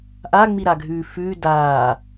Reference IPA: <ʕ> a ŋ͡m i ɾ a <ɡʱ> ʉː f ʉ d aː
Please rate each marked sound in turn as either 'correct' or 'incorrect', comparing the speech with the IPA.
incorrect, correct

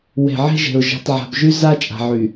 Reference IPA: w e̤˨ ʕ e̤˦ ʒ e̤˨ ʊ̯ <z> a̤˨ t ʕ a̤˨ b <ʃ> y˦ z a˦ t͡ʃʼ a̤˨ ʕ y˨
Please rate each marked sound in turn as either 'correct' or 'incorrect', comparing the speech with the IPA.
incorrect, incorrect

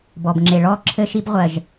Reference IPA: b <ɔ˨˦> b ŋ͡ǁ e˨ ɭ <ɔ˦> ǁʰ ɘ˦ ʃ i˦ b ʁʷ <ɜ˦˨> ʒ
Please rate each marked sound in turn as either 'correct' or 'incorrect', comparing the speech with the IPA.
incorrect, correct, incorrect

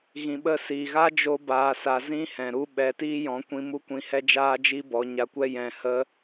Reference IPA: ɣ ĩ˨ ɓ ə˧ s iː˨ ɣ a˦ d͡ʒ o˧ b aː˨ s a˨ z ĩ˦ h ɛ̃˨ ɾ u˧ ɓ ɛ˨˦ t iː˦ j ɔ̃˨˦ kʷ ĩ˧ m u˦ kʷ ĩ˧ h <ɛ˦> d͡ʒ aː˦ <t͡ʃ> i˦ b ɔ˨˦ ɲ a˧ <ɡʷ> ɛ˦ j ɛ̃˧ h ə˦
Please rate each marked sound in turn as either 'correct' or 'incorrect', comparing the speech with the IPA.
correct, incorrect, incorrect

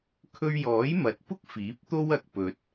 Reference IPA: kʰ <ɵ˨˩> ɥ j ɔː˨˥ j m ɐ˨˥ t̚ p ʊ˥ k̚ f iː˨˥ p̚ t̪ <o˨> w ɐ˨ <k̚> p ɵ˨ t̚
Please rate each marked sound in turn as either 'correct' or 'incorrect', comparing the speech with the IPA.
incorrect, incorrect, correct

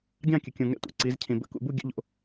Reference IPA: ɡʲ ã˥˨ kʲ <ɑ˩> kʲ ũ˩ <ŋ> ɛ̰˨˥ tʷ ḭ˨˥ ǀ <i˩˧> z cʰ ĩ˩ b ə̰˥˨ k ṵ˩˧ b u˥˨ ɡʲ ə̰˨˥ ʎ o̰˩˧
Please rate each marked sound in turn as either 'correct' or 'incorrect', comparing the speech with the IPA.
incorrect, correct, correct

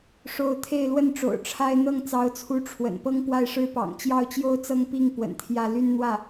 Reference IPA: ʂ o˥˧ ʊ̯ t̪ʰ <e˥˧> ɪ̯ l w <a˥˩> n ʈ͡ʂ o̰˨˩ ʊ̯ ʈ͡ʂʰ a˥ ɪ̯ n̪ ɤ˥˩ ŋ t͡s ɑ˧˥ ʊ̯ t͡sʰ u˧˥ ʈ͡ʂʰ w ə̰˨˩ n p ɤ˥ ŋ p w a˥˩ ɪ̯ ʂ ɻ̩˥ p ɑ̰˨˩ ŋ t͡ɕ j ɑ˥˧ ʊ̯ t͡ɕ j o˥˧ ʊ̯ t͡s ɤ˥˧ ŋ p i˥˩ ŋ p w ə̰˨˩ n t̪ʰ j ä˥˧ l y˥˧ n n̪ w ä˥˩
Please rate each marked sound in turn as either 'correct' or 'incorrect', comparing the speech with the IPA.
correct, incorrect

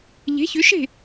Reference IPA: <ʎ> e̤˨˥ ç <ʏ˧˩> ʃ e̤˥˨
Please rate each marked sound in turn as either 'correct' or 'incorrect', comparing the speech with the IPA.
correct, incorrect

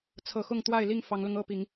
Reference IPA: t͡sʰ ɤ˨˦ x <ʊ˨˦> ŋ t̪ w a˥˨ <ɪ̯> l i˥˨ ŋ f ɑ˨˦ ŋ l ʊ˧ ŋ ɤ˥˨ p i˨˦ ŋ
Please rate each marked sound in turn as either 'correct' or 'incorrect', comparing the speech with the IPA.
incorrect, correct

